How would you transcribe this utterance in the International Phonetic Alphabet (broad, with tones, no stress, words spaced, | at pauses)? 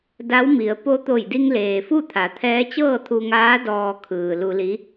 da˧˥wmi˩˧ə̯ po˧t̪o˧˩jdi˧ŋ leː˩fu˥˨t̪ʰa˩˧ t̪ʰɛː˧˥t͡ɕɤː˥˨t̪ʰu˧ŋaː˧˥ dɔː˧kʰɯː˩lu˧li˧˥